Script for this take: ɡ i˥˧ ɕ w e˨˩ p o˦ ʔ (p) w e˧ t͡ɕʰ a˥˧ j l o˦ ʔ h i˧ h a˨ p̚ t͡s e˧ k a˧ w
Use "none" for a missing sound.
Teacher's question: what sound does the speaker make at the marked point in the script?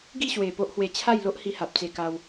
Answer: h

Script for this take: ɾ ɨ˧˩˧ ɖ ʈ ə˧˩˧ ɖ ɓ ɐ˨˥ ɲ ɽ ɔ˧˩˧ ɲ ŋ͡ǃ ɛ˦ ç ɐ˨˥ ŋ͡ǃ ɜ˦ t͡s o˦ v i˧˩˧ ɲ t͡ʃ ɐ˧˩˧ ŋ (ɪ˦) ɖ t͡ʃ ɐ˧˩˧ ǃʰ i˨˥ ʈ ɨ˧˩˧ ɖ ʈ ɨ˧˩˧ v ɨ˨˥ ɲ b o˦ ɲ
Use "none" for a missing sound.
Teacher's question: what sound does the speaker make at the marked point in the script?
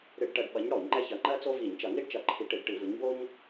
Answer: i˦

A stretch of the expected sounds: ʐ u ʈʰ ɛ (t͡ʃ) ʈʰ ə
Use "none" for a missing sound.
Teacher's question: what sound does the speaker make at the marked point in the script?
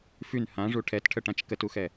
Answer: t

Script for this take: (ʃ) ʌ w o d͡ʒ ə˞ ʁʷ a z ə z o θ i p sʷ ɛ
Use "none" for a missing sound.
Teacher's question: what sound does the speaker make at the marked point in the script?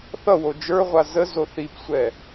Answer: θ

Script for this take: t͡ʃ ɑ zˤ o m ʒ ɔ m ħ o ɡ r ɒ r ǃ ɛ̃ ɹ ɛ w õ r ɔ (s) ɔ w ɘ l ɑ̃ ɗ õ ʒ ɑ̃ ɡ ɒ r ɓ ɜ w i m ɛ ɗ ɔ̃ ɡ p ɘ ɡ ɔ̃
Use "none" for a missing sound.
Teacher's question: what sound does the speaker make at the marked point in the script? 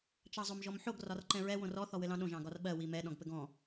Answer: θ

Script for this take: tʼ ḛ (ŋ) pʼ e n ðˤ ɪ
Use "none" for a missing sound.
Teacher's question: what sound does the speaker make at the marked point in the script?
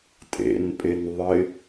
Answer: n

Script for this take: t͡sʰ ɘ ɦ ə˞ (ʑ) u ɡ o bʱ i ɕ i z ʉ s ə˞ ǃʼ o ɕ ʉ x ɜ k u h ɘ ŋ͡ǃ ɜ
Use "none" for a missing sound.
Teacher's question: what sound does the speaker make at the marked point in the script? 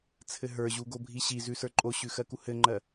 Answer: ʑ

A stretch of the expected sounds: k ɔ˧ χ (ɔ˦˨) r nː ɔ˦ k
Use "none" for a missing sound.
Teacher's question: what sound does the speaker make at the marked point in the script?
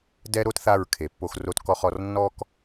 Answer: ɔ˨˦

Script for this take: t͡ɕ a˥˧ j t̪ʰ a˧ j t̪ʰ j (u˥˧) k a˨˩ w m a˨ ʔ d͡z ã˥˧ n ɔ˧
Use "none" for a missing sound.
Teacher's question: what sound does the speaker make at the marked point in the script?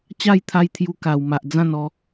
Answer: u˧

